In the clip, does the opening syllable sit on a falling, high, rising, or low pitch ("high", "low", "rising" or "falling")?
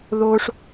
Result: high